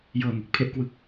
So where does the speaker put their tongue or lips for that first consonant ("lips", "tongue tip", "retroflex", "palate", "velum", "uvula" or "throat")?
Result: palate